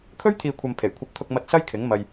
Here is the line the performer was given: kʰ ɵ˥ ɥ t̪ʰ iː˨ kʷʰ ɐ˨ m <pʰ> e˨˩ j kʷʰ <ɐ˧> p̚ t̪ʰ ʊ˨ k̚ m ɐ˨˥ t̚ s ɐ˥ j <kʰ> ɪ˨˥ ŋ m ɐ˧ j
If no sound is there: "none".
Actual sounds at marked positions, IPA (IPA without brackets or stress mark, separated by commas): pʰ, ɐ˧, kʰ